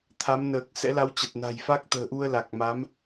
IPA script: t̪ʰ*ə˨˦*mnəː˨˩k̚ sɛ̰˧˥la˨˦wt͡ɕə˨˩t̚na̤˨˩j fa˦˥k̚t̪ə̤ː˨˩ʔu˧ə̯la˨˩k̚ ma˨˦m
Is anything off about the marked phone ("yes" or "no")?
yes